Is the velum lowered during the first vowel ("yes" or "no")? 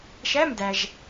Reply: no